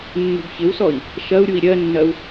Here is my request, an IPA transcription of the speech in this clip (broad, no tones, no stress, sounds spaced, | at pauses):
nː ṳ b ç ɪ w s ɔ i̯ | ʃ ɐ u̯ ɾʲ u i̯ ɾʲ ɜ nː ɐ u̯